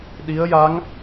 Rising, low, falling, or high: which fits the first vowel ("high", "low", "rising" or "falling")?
rising